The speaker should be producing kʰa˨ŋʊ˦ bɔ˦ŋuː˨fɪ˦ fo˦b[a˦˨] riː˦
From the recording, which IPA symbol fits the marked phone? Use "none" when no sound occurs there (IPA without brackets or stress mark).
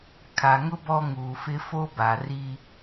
a˨